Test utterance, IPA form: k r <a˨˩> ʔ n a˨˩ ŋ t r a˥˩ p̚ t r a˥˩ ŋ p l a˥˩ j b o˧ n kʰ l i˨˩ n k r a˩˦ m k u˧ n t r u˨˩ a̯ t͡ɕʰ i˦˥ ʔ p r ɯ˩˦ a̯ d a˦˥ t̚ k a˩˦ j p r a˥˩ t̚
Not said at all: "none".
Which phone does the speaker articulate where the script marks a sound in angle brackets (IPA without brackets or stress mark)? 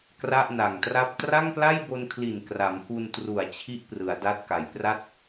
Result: a˥˩